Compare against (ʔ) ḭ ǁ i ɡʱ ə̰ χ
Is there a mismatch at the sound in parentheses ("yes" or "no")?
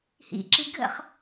yes